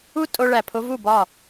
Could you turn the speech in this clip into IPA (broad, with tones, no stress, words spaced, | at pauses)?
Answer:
u˦tʼo˧ɭæ˨pʰo˧ vu˦˨bɒ˦˨